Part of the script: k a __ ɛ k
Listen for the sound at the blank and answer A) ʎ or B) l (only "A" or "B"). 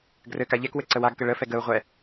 A